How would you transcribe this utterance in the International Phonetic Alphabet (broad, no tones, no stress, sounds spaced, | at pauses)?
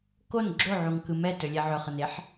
k o n ɡ͡ǁ o ʕ u ŋ k ɯ m ɛ t ɵ lʲ ɛ ʕ ɵ χ ə n e ħ